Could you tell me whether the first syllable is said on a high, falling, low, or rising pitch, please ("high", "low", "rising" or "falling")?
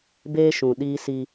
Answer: high